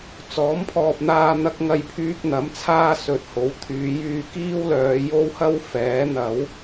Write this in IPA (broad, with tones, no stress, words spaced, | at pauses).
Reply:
t͡sɔː˨˥mpʰɔː˨p̚n̪aː˧ n̪ɐ˧k̚ ŋɐ˧jpʰyː˧k̚n̪ɐ˨˥m t͡sʰaː˧ sɵ˨t̚ ho˨˥wt̪ʰyː˨˧jyː˧ kiː˥wlœː˨˧jo˥whɐ˥w fɛː˨˥n̪ɐ˨˥w